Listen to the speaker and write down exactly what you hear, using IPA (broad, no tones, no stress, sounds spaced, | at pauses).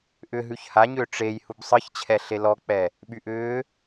ʔ ʏ ɦ ʉ ç h a ɲ ʏː ʈ͡ʂ e j h u b sˤ ɨ ç t͡ɕʰ ɛ ɬ e l ɔ k͡p ɛ | ɓ y ʔ ʏː